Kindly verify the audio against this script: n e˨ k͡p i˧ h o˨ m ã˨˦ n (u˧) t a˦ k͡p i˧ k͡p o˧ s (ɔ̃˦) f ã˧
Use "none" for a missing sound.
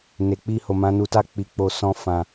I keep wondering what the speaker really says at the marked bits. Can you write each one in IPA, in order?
u˧, ɔ̃˦

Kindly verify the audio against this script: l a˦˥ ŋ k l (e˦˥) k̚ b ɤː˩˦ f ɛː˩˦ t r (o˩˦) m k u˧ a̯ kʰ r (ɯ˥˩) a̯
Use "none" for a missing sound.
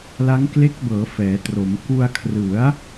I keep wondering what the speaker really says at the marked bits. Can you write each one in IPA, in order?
e˦˥, o˩˦, ɯ˩˦

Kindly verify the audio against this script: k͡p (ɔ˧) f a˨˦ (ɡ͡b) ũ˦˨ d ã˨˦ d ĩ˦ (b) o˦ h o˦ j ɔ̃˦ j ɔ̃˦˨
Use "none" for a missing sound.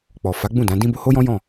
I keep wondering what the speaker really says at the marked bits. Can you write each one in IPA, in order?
ɔ˨, ɡ͡b, b

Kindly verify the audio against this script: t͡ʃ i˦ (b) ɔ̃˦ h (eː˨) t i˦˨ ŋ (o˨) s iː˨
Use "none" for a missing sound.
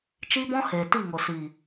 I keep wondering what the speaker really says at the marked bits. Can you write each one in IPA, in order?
b, eː˨, o˨

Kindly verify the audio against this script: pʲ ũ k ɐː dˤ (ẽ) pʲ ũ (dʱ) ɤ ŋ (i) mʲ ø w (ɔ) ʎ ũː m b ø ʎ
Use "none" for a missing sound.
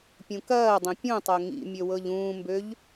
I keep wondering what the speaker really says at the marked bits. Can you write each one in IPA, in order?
ẽ, tˤ, ḭ, ɤ

